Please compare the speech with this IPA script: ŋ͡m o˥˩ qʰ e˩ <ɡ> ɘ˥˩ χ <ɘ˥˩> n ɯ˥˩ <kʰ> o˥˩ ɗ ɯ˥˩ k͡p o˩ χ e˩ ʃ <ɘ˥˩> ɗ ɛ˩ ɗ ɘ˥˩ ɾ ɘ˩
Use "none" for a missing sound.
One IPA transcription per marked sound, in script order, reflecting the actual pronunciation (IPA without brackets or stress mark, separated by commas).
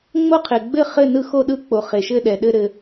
ɡ͡b, ɘ˥˩, x, ɘ˥˩